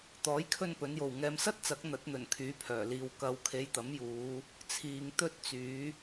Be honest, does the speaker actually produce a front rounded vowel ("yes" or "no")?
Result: yes